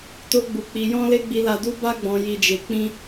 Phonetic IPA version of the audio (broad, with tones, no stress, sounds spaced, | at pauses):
t o˦ ɡ͡b u˧ k͡p i˧ j ɔ̃˦ l e˦ ɡ͡b i˧ l a˧ d u˦ b a˦ ɡ͡b ɔ̃˧ j i˧ d͡ʒ e˧ k͡p ĩ˦